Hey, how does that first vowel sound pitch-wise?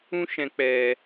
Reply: high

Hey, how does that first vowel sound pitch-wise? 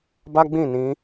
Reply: high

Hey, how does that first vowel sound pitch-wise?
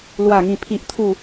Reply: falling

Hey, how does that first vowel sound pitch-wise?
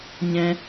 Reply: high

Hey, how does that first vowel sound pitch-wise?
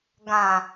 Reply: low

